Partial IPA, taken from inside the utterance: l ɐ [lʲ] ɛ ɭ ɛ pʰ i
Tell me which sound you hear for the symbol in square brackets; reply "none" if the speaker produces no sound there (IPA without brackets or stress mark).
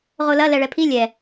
l